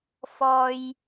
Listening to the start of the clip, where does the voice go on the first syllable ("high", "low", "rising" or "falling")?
low